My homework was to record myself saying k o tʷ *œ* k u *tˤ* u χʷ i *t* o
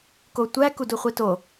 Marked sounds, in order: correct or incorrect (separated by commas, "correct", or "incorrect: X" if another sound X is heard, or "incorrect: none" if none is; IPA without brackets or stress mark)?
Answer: incorrect: æ, incorrect: d, correct